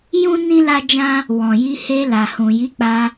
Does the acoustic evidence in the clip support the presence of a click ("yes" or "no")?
no